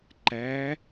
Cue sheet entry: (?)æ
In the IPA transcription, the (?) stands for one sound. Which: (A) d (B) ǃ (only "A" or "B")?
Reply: B